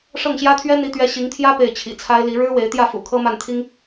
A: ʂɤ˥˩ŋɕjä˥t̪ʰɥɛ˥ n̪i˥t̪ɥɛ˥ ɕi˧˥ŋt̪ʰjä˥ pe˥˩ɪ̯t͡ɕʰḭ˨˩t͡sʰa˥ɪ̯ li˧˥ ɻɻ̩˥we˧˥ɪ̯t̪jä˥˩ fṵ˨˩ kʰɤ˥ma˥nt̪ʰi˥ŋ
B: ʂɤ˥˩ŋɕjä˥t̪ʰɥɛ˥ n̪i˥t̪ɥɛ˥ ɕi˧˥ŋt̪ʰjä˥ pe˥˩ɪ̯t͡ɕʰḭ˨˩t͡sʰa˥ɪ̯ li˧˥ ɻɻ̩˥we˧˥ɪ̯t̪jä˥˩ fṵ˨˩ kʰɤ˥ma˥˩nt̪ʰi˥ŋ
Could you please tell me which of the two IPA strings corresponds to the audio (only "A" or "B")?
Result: B